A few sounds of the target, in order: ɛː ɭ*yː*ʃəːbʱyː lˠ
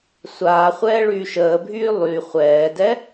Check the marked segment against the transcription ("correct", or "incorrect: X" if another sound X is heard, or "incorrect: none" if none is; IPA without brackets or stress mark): correct